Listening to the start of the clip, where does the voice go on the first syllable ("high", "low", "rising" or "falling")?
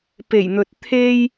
low